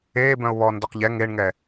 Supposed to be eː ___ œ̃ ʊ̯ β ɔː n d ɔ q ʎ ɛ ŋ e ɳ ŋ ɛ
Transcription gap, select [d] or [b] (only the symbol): b